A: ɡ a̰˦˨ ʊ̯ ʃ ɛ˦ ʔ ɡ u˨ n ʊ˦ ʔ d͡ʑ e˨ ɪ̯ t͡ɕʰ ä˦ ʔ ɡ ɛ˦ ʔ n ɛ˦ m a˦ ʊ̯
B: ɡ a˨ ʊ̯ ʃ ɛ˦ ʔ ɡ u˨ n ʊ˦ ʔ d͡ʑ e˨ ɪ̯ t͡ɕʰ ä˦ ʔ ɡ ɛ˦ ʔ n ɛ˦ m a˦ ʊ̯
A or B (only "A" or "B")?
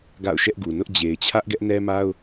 A